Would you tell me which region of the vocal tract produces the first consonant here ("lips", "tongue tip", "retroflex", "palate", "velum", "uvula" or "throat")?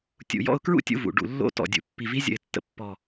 tongue tip